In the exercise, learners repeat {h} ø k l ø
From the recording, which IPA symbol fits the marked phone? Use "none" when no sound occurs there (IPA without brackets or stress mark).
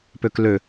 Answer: p